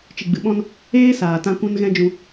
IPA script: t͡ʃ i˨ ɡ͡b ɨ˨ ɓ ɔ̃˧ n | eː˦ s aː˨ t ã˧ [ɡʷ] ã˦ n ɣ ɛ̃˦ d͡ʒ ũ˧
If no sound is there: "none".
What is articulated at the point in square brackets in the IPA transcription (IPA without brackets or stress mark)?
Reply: kʷ